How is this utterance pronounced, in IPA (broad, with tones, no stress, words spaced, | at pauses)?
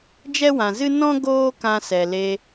d͡ʒɛ˦wã˨zɨ˦ nɔ̃˦ ɡoː˦kã˧sɛ˨le˧